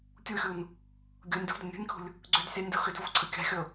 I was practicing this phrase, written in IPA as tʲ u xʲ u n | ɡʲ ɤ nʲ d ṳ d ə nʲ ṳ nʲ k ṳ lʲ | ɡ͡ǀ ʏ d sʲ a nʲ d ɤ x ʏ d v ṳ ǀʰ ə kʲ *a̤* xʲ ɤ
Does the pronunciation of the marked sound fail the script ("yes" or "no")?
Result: no